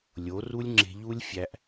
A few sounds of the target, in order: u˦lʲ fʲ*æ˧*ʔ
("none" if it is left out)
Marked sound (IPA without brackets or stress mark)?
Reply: æ˧